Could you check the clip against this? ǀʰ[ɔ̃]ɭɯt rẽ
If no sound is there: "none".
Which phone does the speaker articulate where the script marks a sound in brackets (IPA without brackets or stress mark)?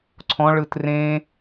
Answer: ɔ̃